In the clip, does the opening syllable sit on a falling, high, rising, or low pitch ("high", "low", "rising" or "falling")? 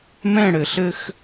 falling